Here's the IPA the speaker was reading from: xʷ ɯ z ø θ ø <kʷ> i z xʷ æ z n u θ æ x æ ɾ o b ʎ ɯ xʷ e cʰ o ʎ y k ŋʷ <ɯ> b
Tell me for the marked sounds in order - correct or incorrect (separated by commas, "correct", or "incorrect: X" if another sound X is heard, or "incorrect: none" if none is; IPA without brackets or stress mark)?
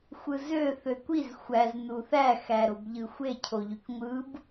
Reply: correct, correct